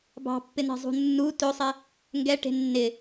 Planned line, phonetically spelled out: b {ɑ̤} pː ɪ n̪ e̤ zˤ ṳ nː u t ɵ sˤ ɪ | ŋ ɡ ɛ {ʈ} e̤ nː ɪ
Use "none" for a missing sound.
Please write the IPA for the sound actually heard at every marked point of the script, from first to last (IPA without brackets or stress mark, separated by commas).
ɑ̤, ʈ